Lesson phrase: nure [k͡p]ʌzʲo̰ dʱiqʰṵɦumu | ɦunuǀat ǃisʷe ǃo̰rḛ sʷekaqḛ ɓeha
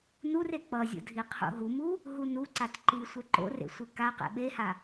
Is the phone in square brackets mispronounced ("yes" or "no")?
no